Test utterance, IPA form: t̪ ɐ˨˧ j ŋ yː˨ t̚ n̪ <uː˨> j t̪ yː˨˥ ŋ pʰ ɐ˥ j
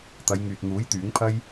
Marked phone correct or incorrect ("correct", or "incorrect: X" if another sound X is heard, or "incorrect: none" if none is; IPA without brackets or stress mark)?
incorrect: uː˨˥